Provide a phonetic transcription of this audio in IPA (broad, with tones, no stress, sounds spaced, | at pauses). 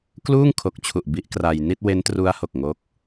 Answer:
k l uː˥˩ ŋ kʰ o˨˩ k̚ t͡ɕʰ u˨˩ ʔ b i˦˥ ʔ k r a˧ j n i˥˩ t̚ w e˦˥ n t r u˦˥ a̯ h o˨˩ k̚ ŋ o˦˥ k̚